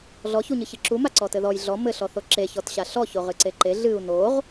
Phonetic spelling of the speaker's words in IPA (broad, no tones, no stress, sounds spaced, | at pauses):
ɮ ɔ ç u ɲ ɨ ç ɨ ǁ u m a ǀ ɔ t ɘ ð ɔ j ɮ ɔ m ɘ ɬ ɔ θ o ǁ e ç ɔ t ɕ a ɬ ɔ ç o ʁ ɨ ǀ e ǃ e ɮ ɨ u̯ n o ʁ